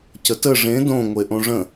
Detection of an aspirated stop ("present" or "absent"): absent